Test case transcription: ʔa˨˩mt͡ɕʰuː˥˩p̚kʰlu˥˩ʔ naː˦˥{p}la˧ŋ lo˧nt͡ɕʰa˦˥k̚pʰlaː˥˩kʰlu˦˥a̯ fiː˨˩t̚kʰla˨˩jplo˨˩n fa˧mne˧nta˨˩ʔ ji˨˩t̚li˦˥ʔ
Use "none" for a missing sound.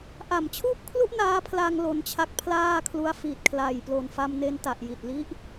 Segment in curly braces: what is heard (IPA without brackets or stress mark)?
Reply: pʰ